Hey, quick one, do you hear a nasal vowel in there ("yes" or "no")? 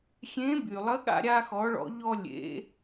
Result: yes